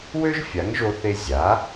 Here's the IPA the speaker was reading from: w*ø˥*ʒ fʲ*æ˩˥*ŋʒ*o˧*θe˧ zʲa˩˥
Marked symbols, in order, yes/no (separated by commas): yes, no, yes